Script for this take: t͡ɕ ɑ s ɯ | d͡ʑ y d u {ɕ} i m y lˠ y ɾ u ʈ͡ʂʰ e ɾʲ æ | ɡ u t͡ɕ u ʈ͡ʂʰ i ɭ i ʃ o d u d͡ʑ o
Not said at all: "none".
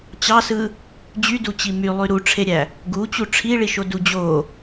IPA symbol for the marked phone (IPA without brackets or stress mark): t͡ɕ